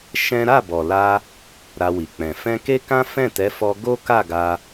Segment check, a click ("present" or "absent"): absent